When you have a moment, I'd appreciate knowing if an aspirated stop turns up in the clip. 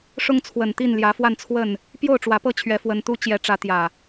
yes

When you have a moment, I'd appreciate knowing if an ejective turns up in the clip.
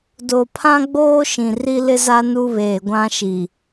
no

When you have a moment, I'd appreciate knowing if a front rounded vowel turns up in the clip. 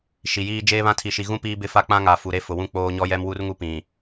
no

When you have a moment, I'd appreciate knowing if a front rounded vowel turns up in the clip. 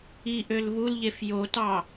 yes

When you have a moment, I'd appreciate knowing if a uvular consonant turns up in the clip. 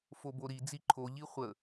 yes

